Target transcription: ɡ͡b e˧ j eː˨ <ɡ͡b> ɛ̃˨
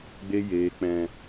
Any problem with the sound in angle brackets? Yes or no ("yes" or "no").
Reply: yes